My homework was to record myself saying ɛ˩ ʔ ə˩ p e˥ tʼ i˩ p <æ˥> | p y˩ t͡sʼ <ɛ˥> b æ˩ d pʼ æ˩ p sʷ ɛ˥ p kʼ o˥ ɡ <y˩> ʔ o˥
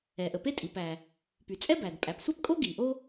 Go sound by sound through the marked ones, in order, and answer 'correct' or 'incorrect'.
incorrect: æ˩, correct, incorrect: i˩

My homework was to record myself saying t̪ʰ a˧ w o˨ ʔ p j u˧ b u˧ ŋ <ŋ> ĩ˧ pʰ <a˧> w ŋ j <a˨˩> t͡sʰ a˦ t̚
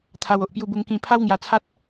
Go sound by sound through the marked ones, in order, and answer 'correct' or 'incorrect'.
incorrect: k, incorrect: a˦, incorrect: a˧

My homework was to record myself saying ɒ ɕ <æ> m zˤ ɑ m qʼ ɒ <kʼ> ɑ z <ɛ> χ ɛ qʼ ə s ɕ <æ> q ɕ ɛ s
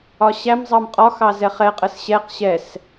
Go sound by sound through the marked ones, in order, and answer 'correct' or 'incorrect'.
correct, incorrect: x, correct, incorrect: ɛ

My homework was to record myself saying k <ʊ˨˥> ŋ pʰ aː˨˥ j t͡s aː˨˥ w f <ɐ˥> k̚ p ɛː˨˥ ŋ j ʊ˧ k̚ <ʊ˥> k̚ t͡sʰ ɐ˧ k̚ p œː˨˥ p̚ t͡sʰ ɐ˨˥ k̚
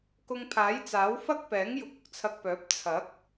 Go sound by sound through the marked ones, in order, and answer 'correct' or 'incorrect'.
incorrect: ʊ˧, correct, correct

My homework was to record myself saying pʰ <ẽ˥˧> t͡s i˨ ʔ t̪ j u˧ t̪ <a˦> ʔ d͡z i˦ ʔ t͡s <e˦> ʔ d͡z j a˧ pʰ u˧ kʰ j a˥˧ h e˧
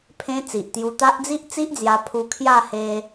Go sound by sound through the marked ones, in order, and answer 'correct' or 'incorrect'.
incorrect: ẽ˧, correct, incorrect: i˦

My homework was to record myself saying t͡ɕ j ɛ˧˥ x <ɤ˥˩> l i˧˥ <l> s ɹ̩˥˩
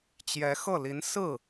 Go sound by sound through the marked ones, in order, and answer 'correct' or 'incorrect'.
correct, incorrect: n

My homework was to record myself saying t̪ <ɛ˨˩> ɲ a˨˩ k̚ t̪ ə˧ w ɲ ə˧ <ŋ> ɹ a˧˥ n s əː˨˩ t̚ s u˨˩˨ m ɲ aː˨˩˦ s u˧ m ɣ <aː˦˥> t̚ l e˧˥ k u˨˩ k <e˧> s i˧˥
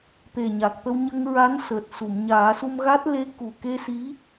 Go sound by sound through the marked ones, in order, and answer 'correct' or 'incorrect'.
incorrect: e˨˩, correct, incorrect: a˦˥, correct

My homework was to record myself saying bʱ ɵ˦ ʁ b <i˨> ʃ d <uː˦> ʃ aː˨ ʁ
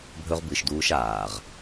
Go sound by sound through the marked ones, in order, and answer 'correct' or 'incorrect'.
incorrect: ɨ˨, correct

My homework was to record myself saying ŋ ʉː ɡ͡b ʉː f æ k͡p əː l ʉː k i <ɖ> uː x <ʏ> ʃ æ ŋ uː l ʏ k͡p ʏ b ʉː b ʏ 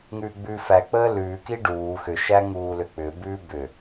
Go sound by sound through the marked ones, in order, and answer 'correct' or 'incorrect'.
correct, correct

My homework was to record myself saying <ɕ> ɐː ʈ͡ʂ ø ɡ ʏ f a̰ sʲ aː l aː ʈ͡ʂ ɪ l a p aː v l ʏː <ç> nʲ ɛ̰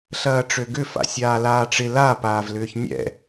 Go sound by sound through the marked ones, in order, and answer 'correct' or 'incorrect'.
incorrect: ɬ, correct

